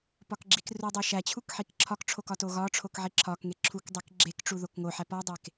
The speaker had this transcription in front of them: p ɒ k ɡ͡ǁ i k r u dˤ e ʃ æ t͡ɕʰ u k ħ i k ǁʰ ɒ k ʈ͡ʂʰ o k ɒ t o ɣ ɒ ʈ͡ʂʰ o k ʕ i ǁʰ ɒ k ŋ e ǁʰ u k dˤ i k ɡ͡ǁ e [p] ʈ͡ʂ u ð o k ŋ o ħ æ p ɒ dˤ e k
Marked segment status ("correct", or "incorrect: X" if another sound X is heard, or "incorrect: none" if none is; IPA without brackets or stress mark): incorrect: k